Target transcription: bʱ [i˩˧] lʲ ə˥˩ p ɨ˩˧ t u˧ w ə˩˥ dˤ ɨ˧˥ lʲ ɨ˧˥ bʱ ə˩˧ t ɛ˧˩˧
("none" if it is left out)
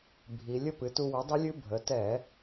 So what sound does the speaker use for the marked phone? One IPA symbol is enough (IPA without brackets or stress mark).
i˩˧